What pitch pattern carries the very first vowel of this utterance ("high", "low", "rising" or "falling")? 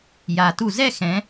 low